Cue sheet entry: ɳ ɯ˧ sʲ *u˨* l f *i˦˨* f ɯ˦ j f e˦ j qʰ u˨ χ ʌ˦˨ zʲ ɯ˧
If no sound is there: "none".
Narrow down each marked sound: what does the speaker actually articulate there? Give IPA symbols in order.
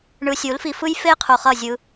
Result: u˨˦, i˧

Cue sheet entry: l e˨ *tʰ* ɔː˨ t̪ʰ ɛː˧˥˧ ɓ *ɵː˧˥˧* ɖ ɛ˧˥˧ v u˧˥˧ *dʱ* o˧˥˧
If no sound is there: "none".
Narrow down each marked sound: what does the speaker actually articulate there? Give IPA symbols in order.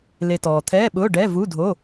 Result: t, ʊː˧˥˧, dʱ

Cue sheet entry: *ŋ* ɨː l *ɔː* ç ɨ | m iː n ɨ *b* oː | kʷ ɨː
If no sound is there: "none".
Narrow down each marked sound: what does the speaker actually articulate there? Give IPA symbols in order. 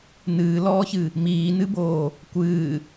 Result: n, ɔː, b

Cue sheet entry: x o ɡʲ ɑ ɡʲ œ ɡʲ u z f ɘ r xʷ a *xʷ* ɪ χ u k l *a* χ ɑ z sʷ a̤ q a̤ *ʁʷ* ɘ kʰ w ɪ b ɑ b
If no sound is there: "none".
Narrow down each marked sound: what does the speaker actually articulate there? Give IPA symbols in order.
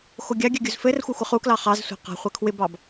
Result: xʷ, ɑ, χʷ

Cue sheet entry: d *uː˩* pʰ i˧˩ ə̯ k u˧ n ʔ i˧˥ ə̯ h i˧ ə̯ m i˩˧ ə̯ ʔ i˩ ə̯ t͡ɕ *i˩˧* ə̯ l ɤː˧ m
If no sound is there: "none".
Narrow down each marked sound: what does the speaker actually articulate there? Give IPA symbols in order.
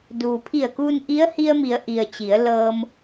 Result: uː˩, i˩˧

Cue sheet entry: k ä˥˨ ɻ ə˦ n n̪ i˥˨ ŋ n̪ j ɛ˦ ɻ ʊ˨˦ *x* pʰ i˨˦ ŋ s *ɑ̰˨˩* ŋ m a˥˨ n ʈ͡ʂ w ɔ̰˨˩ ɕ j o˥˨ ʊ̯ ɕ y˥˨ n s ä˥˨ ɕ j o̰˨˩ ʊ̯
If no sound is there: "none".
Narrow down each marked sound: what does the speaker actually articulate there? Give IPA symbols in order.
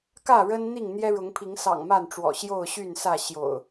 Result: ŋ, ɑ̰˨˩

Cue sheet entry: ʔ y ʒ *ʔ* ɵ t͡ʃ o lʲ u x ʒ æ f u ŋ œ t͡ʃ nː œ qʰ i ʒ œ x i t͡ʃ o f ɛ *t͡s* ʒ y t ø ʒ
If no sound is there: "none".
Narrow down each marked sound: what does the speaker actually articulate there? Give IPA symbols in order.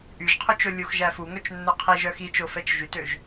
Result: qʰ, t͡ʃ

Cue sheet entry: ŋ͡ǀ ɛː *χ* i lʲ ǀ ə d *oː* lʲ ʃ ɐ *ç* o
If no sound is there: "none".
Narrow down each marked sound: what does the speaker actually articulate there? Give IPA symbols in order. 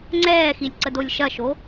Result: x, o, ʃ

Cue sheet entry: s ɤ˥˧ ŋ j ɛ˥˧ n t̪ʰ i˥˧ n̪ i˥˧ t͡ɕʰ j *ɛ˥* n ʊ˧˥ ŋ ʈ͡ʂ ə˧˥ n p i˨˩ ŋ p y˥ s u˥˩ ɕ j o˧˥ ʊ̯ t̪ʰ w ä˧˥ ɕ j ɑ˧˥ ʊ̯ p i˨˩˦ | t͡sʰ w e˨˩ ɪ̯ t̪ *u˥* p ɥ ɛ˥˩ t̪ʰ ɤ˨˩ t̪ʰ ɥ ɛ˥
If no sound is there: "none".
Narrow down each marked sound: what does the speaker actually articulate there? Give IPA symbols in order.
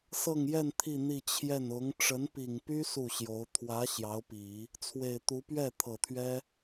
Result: ɛ˥˩, u˧˥

